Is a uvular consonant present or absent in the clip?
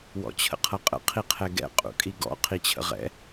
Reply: present